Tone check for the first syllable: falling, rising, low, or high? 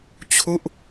falling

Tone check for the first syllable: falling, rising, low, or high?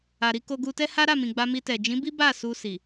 low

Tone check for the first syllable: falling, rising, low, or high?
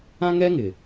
high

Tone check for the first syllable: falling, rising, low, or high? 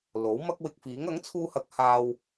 rising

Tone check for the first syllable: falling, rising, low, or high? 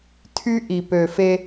high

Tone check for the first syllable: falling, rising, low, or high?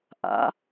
rising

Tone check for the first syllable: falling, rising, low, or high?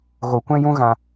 low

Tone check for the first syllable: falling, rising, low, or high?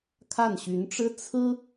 falling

